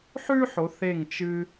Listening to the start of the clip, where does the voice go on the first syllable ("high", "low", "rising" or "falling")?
high